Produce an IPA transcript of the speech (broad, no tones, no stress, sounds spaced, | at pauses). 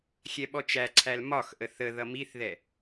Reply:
xʲ ɛ ɓ ɔ t͡ʃ æ ǀʰ æ l m ɒ x ʔ ə θ ə ð ʌ m i θ ð ɛ